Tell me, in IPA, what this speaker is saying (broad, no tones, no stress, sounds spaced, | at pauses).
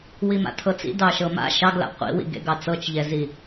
w i m a̰ tʰ ɤ t͡s ḭ d ɑ ʃ ɤ m a̰ ʃ ɑ ɡ l a̰ qʷ ḭ w ḭ ɡ ḛ ɡ ɑ t͡s ɤ t͡ʃ ʎ ɛ z i